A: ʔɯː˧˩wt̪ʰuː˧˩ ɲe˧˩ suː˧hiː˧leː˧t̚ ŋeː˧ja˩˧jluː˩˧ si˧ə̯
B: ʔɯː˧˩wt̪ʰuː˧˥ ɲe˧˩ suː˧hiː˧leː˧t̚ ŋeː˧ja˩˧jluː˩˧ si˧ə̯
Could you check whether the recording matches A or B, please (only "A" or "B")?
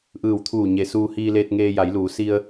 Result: A